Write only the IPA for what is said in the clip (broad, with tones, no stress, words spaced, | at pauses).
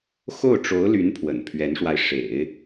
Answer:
xo˥˩ʊ̯ʈ͡ʂo˧˥ʊ̯ly˧˥n pʰwə̰˨˩npʰɥɛ˧˥nʂwa˧ɪ̯ ʂḛ˨˩˦ɪ̯